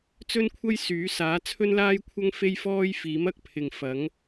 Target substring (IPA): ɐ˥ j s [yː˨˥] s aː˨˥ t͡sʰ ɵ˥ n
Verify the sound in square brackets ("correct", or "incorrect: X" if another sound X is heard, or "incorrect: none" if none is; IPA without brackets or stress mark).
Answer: correct